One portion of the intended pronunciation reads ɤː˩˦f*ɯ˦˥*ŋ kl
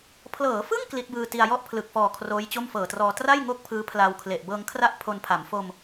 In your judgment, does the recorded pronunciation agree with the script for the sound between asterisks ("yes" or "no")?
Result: no